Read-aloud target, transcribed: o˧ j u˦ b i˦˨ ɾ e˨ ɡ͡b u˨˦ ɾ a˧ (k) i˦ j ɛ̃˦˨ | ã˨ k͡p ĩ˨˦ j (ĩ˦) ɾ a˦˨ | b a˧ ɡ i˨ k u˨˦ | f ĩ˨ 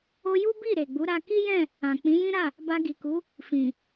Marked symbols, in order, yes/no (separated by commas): yes, yes